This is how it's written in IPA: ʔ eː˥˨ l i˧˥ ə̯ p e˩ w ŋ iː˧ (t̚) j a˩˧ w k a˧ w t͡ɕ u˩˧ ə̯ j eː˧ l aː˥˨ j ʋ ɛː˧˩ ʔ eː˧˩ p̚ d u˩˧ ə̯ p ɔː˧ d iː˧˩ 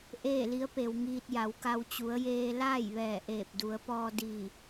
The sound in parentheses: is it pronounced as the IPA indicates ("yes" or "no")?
yes